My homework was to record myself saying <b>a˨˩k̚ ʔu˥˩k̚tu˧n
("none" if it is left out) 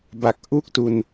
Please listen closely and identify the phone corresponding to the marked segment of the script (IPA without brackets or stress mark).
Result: b